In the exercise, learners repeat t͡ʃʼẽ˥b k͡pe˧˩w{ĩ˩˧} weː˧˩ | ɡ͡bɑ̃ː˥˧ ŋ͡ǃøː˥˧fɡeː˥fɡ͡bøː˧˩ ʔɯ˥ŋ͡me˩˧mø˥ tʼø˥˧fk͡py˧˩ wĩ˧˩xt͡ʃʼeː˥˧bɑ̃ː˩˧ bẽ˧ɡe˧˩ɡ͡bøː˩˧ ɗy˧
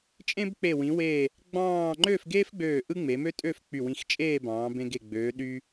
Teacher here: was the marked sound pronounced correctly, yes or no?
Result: yes